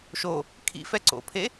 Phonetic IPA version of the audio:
ʃ o | kʰ ḭ f ɛ ǀ o̰ pʰ e

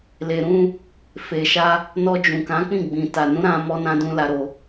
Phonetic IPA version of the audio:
l e˨ ɾ ũ˧ | f e˨ ʃ a˧ | n ɔ˧ d͡ʒ ũ˨ k ã˨˦ k͡p ĩ˦˨ ɡ͡b ĩ˨ t a˨ n ũ˨˦ ɾ ã˧ m ɔ˧ n ã˦ d ũ˦ l a˧ ɾ o˧

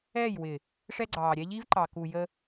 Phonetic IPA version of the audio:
ɛ˦˨ j w ɪ˨ | ʂ ɛ˦ ɡ͡ǀ ɑː˨ ɾʲ ɛ˦ ʎ i˦ v ǃ ɑ˨ k u˨ j ə˦

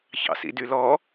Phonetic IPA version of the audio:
ç ɑ̰ s ḭ d y l ɔ

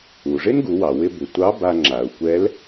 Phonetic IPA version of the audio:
u˩ ʐ ɪ˥ n ɡ u˩˧ w ɑ˩ w ɪ˧ b ɪ˩ tʷ ɑ˧˥ b a˧ ŋ͡ǁ a˩ u̯ kʷ ɛ˧˥ l

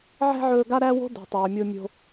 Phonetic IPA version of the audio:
ʕ æ̤˥ ʕ ɵː˧ ɡ a˥ ɾ æ˥ w o̤˥ d ṳ˩ tˤ ɵː˩ mʲ o˧ mʲ o̤˧

